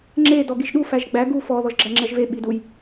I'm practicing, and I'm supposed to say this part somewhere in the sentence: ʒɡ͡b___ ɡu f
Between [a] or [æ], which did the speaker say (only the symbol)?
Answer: æ